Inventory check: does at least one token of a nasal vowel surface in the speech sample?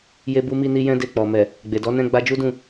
yes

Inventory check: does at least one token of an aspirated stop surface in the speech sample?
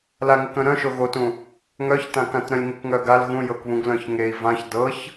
no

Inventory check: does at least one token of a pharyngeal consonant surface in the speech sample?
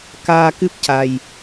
no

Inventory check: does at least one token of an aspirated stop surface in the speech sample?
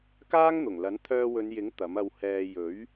yes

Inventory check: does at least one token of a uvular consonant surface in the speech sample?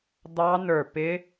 no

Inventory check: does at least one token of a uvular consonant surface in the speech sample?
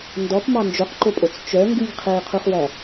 yes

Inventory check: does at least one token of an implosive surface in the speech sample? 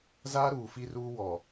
no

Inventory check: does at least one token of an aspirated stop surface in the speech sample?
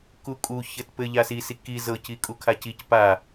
yes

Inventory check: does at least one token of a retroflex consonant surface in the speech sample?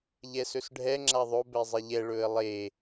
yes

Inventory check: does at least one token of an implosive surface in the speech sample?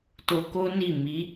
no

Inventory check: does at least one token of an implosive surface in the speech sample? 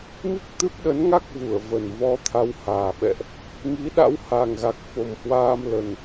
yes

